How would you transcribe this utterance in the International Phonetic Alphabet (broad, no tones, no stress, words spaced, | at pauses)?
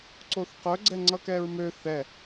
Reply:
ǀoθqœ ɡ͡ǀɛŋ͡ǀʌkɛɹmø θɛ